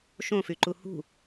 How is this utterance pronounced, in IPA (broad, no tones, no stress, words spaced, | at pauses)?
ʃõfyǃu hṳ